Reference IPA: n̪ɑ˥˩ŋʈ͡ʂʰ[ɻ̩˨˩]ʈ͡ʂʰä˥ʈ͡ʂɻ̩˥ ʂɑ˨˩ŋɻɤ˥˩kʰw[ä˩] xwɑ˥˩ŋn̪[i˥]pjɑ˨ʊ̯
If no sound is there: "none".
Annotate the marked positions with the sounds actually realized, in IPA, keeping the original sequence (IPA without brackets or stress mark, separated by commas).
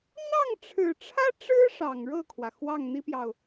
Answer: ɻ̩˨˩, ä˩, i˥